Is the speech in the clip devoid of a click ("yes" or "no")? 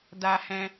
yes